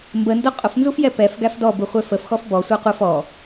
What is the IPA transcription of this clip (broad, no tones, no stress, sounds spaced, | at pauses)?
m b ə n d ʊ qʼ ʊ f n z u f j ɛ p ɛ f ɡ æ f d ɔ b u χʷ ɛ f ə f x ɔ f b ɔ sʷ æ qʷ ɛ f ɔ